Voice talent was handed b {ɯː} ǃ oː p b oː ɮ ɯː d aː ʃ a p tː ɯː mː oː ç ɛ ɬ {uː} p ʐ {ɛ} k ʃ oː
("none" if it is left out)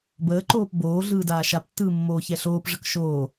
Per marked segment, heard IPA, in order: əː, oː, ə

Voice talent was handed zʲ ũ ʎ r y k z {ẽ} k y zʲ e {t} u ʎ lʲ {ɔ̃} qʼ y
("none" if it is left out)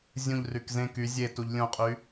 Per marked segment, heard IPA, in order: ẽ, t, õ

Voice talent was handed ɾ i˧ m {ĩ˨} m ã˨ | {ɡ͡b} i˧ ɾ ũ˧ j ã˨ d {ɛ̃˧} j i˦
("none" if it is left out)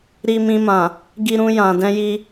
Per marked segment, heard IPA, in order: ĩ˧, ɡ, ɛ̃˧

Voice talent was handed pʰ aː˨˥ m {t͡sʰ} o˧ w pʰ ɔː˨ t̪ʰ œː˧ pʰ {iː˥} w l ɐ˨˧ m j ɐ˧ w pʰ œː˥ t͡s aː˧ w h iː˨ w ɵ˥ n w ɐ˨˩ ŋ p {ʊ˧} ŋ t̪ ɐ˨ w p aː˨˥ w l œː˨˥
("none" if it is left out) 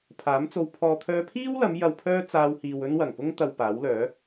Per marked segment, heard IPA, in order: t͡s, iː˥, ʊ˥

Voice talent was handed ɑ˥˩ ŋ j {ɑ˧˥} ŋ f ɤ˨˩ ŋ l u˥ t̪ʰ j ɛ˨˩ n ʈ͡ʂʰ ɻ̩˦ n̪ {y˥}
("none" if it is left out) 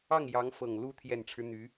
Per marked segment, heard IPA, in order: ɑ˧˥, y˧˥

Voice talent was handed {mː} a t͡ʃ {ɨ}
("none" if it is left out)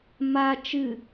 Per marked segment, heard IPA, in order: m, ɨ

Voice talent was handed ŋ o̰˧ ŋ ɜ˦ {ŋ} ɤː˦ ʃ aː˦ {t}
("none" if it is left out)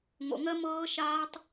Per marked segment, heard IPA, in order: m, tˤ

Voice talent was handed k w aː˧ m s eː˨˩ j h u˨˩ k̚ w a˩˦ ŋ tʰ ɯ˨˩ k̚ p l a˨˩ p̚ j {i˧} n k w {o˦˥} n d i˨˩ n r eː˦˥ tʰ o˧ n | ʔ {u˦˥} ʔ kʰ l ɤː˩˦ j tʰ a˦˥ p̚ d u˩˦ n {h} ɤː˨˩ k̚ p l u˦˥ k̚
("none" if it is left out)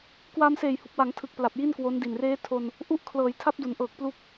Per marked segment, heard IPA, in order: i˥˩, o˦˥, u˥˩, ʔ

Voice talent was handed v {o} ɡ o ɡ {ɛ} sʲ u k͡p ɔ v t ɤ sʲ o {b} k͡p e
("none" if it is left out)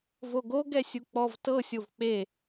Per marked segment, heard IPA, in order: o, ɛ, v

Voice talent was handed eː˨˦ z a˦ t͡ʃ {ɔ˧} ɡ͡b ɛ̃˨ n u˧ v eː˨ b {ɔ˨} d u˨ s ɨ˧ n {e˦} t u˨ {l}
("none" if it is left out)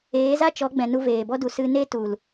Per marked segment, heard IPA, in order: ɔ˨˦, ɔ˦, e˦, l

